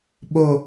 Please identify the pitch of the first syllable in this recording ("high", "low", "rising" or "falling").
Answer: high